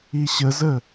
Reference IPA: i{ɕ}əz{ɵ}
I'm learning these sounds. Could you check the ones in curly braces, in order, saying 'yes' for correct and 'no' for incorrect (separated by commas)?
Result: yes, no